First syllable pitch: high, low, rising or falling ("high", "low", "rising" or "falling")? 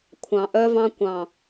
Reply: low